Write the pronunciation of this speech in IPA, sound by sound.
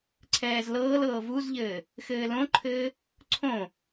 ǀʰ ɛː z l ɤː l ɤː v u z ʎ ɘː | x ɘː l õ ǃʰ ɘː | ǀʰ õ

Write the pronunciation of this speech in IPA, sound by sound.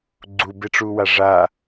ɡ͡ǀ u b e ʈ͡ʂ u w a ʐ a

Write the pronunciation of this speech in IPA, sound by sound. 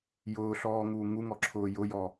j ʊː ɬ ɔː ŋ uː ŋ u ŋ ɔ ǁʰ ʊː j ʊ j ɔ

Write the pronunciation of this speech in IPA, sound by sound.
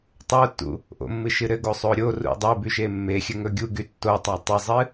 tˤ o tː ṵ | ʔ o̰ mː ɨ ʃ ɨ ɾ ɘ ɡ o sˤ o ɾʲ o r ṵ dˤ e b y ʃ e mː e xʲ ɘ ŋ ɵ ɡʲ u ɡ y tː o tˤ a tˤ ɨ zˤ ɨ

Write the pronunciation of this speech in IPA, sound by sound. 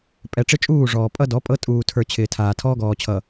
pʼ ɛ˨ ʈ͡ʂ ɪ˦ t͡ʃʼ uː˦˨ ʐ ɔː˨ pʼ ʌ˦ d ɔ˨˦ pʼ ɤ˦ tʼ uː˨ tʰ ə˞˨ t͡ɕʰ ɪː˨ tʰ aː˨ tʰ ɔː˦ ɡ ɔː˨ t͡ɕʰ ʌ˨

